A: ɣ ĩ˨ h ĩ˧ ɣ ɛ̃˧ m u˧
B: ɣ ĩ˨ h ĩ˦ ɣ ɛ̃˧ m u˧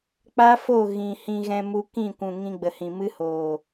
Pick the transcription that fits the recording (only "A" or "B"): A